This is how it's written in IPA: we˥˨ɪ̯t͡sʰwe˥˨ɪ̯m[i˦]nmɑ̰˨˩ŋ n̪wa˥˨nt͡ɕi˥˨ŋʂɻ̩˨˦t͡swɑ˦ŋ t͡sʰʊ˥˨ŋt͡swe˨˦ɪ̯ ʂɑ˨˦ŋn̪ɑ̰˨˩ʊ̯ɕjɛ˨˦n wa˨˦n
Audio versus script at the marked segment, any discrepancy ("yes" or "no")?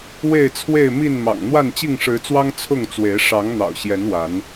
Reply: yes